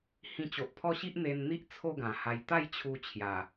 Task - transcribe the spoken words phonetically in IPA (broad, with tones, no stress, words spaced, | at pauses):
hĩ˧t͡ɕo˨ʔpʰɔ˦ɕi˦ʔ n̪e˧nn̪i˦ʔ t͡sʰo˥˧ɡã˨˩ ha˧j t̪a˥˧jt͡ɕʰu˧ t͡ɕʰja˨˩